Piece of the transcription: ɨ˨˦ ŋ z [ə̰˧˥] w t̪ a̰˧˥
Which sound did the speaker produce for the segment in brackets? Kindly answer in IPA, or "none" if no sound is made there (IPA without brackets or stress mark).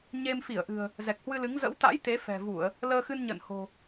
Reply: ə̰˧˥